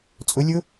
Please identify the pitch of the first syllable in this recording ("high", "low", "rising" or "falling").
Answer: rising